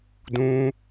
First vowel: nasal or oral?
nasal